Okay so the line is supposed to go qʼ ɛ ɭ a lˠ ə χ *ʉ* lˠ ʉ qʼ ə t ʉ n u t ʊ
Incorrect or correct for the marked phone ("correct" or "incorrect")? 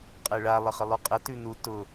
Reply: incorrect